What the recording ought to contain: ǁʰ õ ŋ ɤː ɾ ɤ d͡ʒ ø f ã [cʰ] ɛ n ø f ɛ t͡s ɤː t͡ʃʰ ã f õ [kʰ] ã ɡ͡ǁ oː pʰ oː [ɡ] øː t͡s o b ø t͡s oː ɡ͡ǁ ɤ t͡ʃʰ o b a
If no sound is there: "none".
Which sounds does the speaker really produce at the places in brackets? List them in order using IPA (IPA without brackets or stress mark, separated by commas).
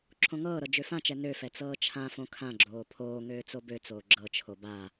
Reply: t͡ʃ, kʰ, ŋ